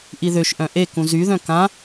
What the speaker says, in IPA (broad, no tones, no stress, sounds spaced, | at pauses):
ʔ i ð ø ʃ ʔ œ̃ ʔ e k ũ z y ð œ̃ k ã